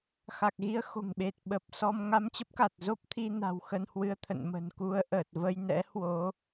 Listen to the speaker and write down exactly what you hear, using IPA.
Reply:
x a˨˩ k̚ ɣ i˧ ə̯ x o̤˨˩ ŋ ɓ e˨˩ t̚ ɓ ə˨˩ p̚ s ɔ˧ m ŋ a˧ m t͡ɕ ə˦˥ p̚ k a˨˩ t̚ z o˦˥ p̚ t̪ʰ i˧ n a̤˨˩ w x ə˧ n h w ɨ˧ ə̯ t̪ʰ ə̰˧˨ n m ə̤˨˩ n k u˧ ə̯ ʔ əː˨˩ t̚ v ə˧ j n ɛ̰˧˥ h w o˨˦

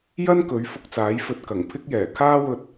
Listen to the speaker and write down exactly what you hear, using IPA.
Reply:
j ɐ˥ n k ɵ˨˥ ɥ f ʊ˧ k̚ t͡s aː˨˥ j f ɵ˧ t̚ k ɐ˨˩ ŋ pʰ ɪ˥ k̚ j ɛː˨˩ kʰ aː˥ w ɵ˧ t̚

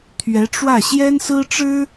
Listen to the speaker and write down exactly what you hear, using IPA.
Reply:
t̪ʰ ɥ ɛ˧˥ ʈ͡ʂ w ä˥˩ ɕ j ɛ˥ n s ɹ̩˥ ʈ͡ʂ ɻ̩˥

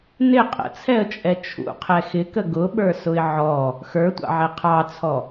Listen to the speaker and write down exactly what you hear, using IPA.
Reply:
n ɪ qʼ ə̰ t͡sʰ ɛ ə̯ t͡ʃʼ ɛ t͡ʃʰ ṵ qʰ ɛ x ɪ k ə ɡ ʊ ɓ ə˞ s ʊ ɪ̯ ʕ ɔ | x ə˞ tʷ ɑ̰ ʕ ɛ qʰ ɑ t͡sʰ ɔ

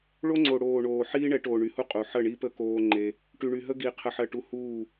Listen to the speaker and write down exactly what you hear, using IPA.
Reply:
ɭ o˦ ŋ͡ǀ o˨ ɽ oː˨ ɳ oː˨ ħ iː˦ ɳ ɛ˨˦ ʈ oː˨ ɳ y˨ h u˦ qʼ u˨ ħ ə˦˨ ɳ i˦ p ə˦ k oː˦ ŋ͡ǃ e˦ | ʈ y˨ ɳ y˨ ɦ ə˦ ɡ i˨ qʰ ə˨ ħ ɜ˨ ʈ u˨˦ h uː˦˨

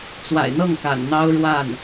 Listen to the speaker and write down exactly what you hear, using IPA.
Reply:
t͡s w a̰˨˩ ɪ̯ n̪ ɤ˥˩ ŋ k a̰˨˩ n n̪ ɑ˥ ʊ̯ ɻ w a˥˩ n

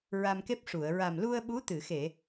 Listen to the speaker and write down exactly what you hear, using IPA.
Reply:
ɹ a˧ m k e˦˥ p̚ ʂ u˨˩˨ ə̯ ɹ a˨˩ m l u˧ ə̯ ɓ u˧˥ t̪ ɨ˨˩˨ x e˨˩˨

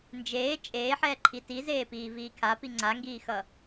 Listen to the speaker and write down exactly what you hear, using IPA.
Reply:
n d͡ʒ eː t͡ʃʼ eː ħ ɛː ǃʰ i t i z eː p iː v iː kʰ a p i ŋ͡ǀ a ŋ ɡ iː x ʌ

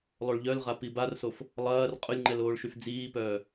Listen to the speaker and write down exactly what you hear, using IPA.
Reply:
lˠ o ɭ ʎ œ l ʁ a p i b a r s o f | lˠ ɐː r qʼ ʊ lʲ ŋ͡ǃ ɛ l oː ɭ ʃ y f d͡z iː p œː

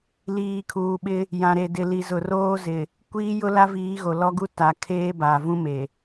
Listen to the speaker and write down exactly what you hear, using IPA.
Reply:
l iː˨ kʰ uː˨ ɓ ɪ˦ | j ã˨ ɾ e˨ d ɪ˨ l i˨ z ʊ˨ r oː˦ z ɪ˨ | kʷ iː˦ j ʊ˦ l a˦ v iː˨˦ ɣ o˨ l ɔ˦ ɡ u˦ t a˨ kʰ eː˦ b a˨ v ũ˦ m e˨

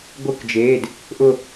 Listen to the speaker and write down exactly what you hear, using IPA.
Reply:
ɡʷ ɯ˧˩ k d͡ʒ eː˩˧˩ d | ʔ ʊ˧˩

